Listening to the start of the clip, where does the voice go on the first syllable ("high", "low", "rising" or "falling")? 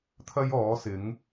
high